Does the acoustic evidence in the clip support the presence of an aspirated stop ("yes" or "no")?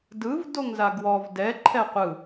yes